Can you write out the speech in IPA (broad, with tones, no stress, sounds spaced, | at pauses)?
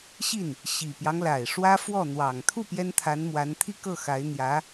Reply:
ɕ i˥˩ n | ɕ i˨˩ p j ɑ˦ ŋ l a˨˩ ɪ̯ ʂ w ä˥ f w ɔ˥˩ n̪ w ɑ˨˩ ŋ t̪ʰ u˥˩ p j ɛ˥ n t̪ʰ a˧˥ n m w a˧˥ n t̪ʰ i˥˧ k ɤ˥˩ x a˧˥ ɪ̯ n̪ j ä˧˥